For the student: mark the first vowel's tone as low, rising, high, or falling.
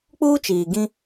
high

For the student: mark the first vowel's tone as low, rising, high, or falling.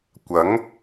rising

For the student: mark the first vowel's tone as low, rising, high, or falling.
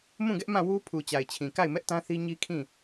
falling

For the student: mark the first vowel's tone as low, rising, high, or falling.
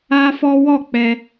high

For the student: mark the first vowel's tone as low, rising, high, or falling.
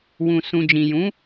low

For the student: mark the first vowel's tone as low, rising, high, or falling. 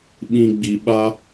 low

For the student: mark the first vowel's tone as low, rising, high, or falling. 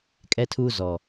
high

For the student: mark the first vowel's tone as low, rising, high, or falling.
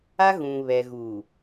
high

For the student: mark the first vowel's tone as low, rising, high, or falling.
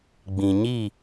low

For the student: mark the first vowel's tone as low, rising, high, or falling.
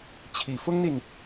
low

